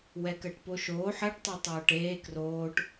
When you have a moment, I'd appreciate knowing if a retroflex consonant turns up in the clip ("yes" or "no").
yes